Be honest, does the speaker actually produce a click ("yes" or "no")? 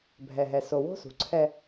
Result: yes